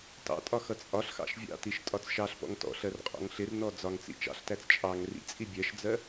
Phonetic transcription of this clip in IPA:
t ɑ̰ tʼ ɒ x ʌ t͡sʼ ɒ ɬ x ɑ̰ ʃ vʲ ɑ̰ t i ʃ tʼ ɒ t͡s ʃ ɑ ɬ p ɔ̰ ŋ t ɔ̰ ɬ ɜ r qʼ ɔ̰ ŋ ɬ ɪ r n ɔ d͡z ɒ ŋ t͡s ḭ t͡ʃ ɑ̰ ɬ t æ t͡s t͡ʃʼ ɑ ŋ r ḭ t͡sʼ i bʲ ɜ ʃ d͡z ɜ

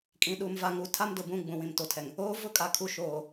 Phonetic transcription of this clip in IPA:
kʼ ĩ˨ ɗ u˨ m v a˨ ŋ u˨ tʰ a˦ m d ʊ˨ b ũ˦˨ ɡ͡b ũ˨ w ĩ˨ m t o˨ tʰ ɛ˨ ŋ | oː˦ v ʊ˦ kʼ a˨ kʰ u˨ ʃ oː˨

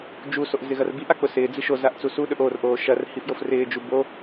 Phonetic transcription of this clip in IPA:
d͡ʒ u s o ʔ z ɪ ɣ ɐ r b i ʔ a k͡p ʊ s ɪː d͡z i ʃ o z a ʔ t͡s u s u ɗ ɵ ʔ o r ʔ oː ʃ ɐ r h i f j o f r ɪː d͡ʒ u b o

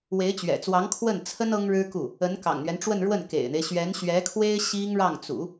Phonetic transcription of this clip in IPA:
w e˧˥ ɪ̯ t͡ɕ ɥ ɛ̰˨˩ t͡s w ɑ˧˥ ŋ kʰ w ə˥˩ n t͡sʰ ə˥ n ɤ˥ ŋ ɻ ɻ̩˥ k u˥˩ | ə˧˥ n k ɑ̰˨˩ ŋ n̪ ɥ ɛ˦ n ʈ͡ʂ w ə˥˧ n ɻ w ə˥˩ n k ḛ˨˩ ɪ̯ n̪ e˦ ɪ̯ ɕ ɥ ɛ˧˥ n ɕ ɥ ɛ˧˥ kʰ w e˥ ɪ̯ ɕ i˥ ŋ ɻ ɑ˥˩ ŋ t͡s ṵ˨˩˦

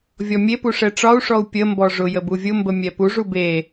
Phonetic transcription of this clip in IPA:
vʲ ɔ mʲ e p u ʂ ɛ ʈ͡ʂ ɒ u̯ ʂ ɔ u̯ pʲ ə m b ɔ ʐ ʊ j ə b u vʲ ʊ m b ə mʲ ɛ p u ʐ u b e

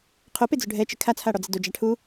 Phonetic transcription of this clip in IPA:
qʰ o p e d͡z ʊ ɖʱ ɛ t͡ʃ ɪ kʰ a t͡sʰ a ɽ ɔ d͡z ɪ d o d͡ʒ a ʈʰ u

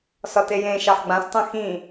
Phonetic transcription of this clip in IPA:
s ɒ t e j ẽ ʃ ɑ ħ ɡ͡b ã s tˤ ɛ̃ x ĩ

